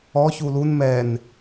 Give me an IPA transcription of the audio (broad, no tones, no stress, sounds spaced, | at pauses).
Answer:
ɔ ç u l u n m ɛ n